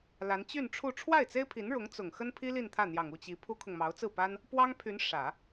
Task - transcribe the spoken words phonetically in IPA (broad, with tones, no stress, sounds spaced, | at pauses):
l a˧˥ n t͡ɕ y˥˧ n ʈ͡ʂʰ u˥˧ ʈ͡ʂʰ w a˥˩ ɪ̯ t͡s e˥ ɪ̯ pʰ i˧˥ n ɻ ʊ˧˥ ŋ t͡s ʊ˨˩ ŋ x ə˥ n pʰ i˥ l i˥˧ n t̪ʰ ä˥˩ n̪ j ɑ˨˩ ŋ u˥˩ t͡ɕ i˧˥ pʰ u˥ kʰ ʊ˨ ŋ m ɑ˧˥ ʊ̯ t͡s ɹ̩˥˩ p a˥ n | p w ɑ˥ ŋ pʰ y˧˥ n ʂ ä˨˩˦